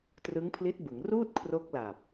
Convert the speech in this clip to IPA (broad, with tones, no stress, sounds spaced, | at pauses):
t r ɯ˦˥ ŋ pʰ l i˦˥ t̚ b ɯ˩˦ ŋ r uː˥˩ t̚ kʰ r o˦˥ k̚ l a˨˩ p̚